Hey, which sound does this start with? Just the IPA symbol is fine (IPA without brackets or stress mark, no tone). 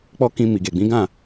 k͡p